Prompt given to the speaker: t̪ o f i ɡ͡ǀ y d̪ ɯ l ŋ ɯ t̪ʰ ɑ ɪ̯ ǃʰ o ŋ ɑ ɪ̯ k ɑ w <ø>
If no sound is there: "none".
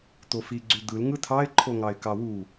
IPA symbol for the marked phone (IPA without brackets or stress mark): u